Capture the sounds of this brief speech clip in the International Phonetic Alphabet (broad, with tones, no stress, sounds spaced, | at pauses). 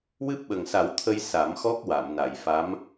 w ɨ˦˥ p̚ ɓ ə˨˩ ŋ s a˨˩˦ w t̪ʰ ə˧ j s a˨˩˦ m x ɔ˦˥ k̚ w a˨˩˨ m n a˨˩˨ j f a˧˥ m